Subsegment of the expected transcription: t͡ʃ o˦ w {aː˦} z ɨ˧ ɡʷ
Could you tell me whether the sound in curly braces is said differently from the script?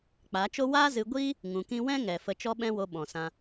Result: no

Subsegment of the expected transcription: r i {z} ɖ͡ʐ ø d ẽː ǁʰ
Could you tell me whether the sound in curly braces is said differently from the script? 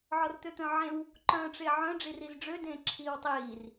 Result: no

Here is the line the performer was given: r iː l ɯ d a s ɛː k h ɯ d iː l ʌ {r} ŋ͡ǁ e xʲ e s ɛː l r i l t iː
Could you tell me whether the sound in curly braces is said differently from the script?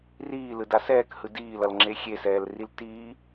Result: yes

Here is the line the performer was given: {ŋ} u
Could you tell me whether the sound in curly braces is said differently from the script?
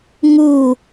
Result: no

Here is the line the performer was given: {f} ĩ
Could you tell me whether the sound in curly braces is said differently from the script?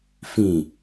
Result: no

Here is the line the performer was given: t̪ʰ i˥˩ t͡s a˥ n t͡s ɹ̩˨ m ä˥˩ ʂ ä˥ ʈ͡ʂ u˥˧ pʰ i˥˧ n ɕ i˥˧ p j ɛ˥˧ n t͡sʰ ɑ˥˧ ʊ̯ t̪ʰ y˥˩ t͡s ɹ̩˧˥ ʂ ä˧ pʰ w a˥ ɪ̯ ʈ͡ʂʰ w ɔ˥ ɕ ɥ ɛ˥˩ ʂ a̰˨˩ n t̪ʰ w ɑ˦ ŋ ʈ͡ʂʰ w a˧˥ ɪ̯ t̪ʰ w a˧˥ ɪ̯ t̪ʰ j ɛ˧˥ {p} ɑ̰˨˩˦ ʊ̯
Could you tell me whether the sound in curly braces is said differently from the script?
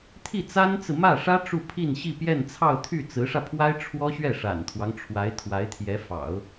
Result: yes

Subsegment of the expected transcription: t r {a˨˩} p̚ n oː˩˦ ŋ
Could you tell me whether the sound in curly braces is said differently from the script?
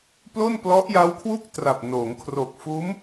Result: no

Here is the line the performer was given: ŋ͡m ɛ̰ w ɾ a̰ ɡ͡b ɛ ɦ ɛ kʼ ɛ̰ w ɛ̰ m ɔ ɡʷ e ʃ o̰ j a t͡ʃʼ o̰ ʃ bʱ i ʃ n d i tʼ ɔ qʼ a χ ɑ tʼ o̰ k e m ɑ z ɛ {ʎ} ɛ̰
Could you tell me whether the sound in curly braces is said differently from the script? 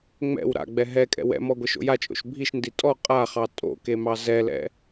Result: yes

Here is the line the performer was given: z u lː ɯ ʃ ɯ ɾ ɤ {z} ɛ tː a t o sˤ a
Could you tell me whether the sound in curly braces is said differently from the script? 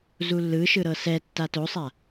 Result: yes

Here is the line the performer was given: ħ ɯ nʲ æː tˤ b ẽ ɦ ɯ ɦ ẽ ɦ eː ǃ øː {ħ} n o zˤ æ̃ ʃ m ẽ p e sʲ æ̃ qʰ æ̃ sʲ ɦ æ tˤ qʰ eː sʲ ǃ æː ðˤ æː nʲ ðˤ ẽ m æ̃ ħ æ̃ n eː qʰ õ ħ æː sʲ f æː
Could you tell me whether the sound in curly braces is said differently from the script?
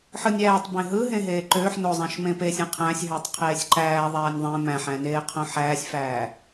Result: no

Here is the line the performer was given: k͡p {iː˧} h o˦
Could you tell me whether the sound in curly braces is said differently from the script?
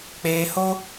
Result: yes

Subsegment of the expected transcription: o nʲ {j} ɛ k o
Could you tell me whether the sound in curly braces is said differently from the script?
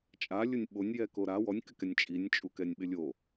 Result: no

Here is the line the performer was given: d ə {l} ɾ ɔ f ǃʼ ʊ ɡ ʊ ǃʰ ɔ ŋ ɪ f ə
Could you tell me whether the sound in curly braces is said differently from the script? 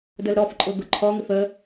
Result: no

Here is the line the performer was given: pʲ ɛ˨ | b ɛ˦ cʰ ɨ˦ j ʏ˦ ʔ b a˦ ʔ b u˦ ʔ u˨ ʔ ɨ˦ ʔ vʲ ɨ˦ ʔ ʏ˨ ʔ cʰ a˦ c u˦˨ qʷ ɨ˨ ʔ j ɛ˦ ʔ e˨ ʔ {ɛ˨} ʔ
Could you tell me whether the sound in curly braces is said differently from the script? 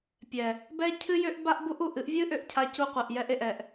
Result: no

